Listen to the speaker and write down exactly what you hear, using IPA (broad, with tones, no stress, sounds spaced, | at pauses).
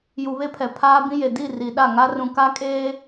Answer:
j u˨ β e˦ pʰ ɛ˨ pʰ aː˦ b ĩ˦ j e˨ d i˦˨ r i˨ ɗ a˦˨ ŋ a˦ r ũ˨ k a˦ kʼ eː˦